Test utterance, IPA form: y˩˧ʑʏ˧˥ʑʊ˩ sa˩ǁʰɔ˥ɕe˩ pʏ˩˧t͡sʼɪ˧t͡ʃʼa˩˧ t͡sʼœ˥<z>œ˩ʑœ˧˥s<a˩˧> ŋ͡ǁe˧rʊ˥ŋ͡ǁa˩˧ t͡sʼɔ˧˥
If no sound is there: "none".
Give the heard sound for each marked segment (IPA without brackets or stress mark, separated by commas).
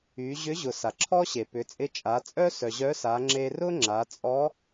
s, a˩˧